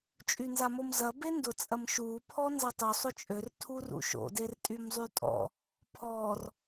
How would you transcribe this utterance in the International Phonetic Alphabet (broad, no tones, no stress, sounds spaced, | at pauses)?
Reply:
t͡ʃʼ y n z a m o m z ɐ b e n d ʊ t͡sʼ ɐ m ʃ u pʰ ɔ n z ɐ tˤ u sˤ ʊ t͡ʃʼ ø r tʰ u r ṵ ʃ o̰ d e r tʼ y m zˤ y tʼ ɔ̰ | pʰ ɔ r